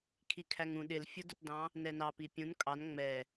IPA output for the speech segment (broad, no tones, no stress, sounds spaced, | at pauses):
kʰ i kʰ æ ŋ ũ ɗ ɪ l fʲ ʊ d ʊ t d ɑ̃ | n ɛ n ɑ p i pʲ ũ n kʼ ɑ n ŋ͡m ɛ